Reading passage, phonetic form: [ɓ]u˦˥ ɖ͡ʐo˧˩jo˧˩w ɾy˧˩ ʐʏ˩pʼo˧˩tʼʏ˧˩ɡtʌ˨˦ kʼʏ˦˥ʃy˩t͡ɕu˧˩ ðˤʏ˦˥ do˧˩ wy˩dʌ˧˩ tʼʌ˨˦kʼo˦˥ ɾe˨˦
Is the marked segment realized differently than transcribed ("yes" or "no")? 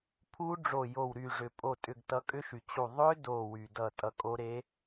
yes